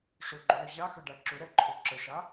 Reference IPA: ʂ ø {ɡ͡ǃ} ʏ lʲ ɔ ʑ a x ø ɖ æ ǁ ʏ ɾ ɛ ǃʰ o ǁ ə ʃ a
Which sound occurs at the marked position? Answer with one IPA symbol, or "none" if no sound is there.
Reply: ɡ͡ǃ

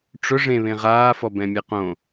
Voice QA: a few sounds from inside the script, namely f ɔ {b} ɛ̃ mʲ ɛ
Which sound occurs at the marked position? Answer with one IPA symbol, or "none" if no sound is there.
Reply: b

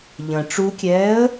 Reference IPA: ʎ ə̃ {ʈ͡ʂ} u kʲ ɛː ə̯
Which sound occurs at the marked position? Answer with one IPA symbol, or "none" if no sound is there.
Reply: ʈ͡ʂ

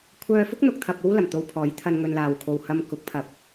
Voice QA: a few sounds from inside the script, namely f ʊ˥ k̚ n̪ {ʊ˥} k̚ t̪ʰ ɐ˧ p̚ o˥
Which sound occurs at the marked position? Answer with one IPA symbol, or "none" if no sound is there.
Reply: ʊ˨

